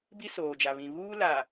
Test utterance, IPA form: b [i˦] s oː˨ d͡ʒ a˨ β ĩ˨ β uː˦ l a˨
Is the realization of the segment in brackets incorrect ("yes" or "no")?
no